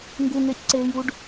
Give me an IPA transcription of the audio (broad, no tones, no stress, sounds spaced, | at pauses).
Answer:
ŋ ɡ u ŋ e c ǀ eː j u ɖ